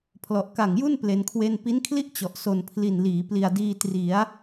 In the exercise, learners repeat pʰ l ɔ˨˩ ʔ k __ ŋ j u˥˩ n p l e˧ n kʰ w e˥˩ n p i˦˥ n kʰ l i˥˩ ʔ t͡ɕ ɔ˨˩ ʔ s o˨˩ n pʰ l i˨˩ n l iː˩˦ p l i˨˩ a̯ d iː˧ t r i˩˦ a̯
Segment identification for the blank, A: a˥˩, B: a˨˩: B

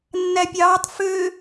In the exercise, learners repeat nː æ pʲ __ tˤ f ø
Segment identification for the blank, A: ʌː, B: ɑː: B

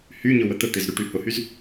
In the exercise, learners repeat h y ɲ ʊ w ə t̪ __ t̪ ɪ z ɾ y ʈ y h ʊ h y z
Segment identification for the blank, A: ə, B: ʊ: A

